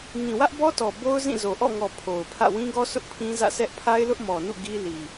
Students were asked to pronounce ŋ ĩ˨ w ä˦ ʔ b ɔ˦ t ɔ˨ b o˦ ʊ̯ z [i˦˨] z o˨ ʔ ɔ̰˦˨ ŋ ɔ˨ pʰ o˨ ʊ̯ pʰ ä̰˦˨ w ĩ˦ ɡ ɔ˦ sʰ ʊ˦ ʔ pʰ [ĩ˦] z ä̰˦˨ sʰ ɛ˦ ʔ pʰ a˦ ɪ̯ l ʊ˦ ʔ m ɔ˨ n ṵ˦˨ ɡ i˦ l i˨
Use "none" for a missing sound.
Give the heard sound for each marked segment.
ĩ˦˨, ĩ˦

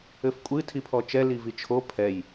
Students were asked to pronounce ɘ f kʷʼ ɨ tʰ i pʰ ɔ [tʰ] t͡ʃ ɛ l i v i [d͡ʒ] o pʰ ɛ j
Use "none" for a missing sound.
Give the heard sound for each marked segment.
none, t͡ʃʰ

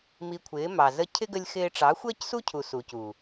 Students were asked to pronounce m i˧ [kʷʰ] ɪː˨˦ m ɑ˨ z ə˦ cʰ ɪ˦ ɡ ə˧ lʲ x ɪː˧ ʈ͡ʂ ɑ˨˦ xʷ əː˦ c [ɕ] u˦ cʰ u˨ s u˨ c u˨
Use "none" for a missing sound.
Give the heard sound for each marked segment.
kʷʰ, s

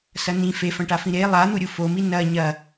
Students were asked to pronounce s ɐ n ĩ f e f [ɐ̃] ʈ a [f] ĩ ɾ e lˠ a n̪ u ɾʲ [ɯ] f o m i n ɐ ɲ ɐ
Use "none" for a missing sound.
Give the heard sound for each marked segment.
ɐ̃, f, u

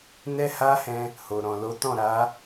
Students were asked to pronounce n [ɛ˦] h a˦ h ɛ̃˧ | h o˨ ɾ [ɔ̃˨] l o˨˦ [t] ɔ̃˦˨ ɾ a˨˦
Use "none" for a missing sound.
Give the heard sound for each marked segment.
ɛ˦, ɔ̃˨, t

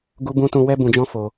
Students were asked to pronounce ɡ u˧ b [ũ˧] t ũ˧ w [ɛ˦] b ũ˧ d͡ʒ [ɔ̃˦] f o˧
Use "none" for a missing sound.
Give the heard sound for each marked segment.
ũ˧, ɛ˦, ɔ̃˦

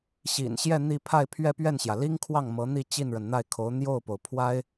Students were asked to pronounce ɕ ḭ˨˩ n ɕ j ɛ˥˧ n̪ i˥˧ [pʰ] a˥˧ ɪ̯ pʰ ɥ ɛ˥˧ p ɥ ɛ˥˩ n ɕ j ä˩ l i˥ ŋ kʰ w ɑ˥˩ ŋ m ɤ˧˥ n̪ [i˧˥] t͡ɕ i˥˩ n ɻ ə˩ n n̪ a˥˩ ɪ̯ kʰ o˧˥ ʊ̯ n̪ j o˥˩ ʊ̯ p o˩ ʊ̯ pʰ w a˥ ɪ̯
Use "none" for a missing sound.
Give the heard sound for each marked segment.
pʰ, i˥˧

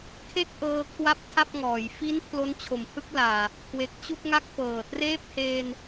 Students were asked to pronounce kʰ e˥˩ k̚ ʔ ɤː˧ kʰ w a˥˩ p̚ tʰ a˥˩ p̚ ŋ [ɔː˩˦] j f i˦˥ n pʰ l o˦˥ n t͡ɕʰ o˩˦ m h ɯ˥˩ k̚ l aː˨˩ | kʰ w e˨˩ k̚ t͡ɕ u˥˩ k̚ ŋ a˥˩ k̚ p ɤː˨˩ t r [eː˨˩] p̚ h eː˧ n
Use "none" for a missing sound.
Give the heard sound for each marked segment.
ɔː˩˦, eː˥˩

